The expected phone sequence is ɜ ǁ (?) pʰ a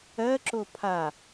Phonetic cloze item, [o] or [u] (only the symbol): o